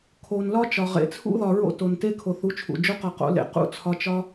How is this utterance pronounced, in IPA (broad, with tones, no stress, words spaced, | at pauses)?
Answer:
kʰo˧n lɒ˦ t͡ʃɒ˧ ʁḛ˧t͡sʰṵ˦ðɒ˧ ɹo̰˦to˧nte˦ kʰo˨θu˨˦t͡ʃʰṵ˨ d͡ʒo˦qɒ˧qo̰˨˦ lḛ˨ qṵ˦˨ t͡sʰɒ˧t͡ʃɒ˦